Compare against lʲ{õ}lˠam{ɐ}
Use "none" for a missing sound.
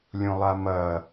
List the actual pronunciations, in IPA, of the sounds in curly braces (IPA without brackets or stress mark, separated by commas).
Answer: õ, ɐ